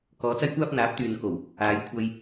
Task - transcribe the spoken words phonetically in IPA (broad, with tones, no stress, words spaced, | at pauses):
kɔː˨˧t͡sɐ˥jkʷaː˥p̚ n̪aː˨˥p̚t̪yː˨n ko˨˩w | aː˨˧jkʷʰɐ˧j